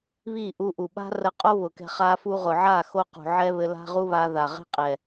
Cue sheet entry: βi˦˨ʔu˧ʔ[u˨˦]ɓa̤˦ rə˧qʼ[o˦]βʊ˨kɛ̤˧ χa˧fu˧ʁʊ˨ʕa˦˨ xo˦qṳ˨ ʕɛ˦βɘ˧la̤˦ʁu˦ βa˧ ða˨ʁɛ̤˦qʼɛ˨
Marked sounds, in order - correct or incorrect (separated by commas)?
incorrect, correct